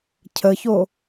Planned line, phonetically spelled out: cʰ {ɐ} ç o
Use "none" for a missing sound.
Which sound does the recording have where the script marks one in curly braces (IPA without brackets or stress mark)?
ə